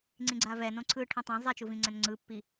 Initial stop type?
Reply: click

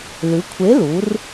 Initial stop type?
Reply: aspirated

